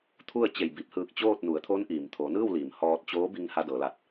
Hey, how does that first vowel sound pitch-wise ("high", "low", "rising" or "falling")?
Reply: falling